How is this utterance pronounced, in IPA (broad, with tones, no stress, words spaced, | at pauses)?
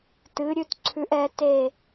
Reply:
tɨ˨˥ ɾʲʉ˨˥tǀʰʉ˨˥ʔ ɛ˨˥te˦˨